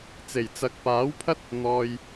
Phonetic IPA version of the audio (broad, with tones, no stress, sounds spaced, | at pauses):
t͡s e˨˩ j t͡s ɐ˨ k̚ p aː˨˥ w pʰ ɐ˥ t̚ | n̪ ɔː˨ j